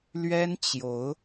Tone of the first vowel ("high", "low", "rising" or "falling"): high